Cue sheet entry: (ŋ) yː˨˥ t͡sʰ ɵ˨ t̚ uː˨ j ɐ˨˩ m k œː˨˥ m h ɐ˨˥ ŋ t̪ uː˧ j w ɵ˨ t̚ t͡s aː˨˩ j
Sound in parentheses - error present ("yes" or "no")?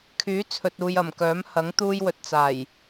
yes